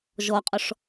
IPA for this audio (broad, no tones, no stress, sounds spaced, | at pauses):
ʒ ɔ qʼ ɔ ʂ